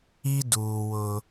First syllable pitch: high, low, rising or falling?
high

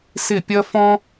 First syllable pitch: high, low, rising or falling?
falling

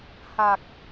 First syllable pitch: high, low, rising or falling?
low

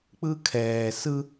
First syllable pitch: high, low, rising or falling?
high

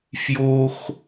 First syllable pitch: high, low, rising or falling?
high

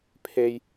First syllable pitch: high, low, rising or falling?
high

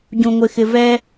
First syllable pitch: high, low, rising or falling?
low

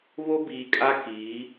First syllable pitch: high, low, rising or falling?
high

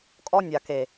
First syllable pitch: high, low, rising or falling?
high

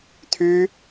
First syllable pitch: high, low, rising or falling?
high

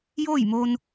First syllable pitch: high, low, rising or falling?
falling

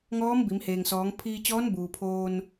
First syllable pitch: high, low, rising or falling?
rising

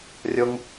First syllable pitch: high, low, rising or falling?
high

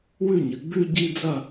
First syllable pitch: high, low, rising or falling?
falling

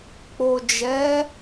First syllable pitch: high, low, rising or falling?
low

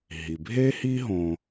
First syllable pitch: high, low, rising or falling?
low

